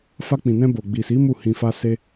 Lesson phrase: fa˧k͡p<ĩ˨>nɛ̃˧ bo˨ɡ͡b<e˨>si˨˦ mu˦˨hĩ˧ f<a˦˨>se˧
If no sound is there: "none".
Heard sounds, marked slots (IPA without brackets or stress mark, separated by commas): ĩ˨, i˨, a˧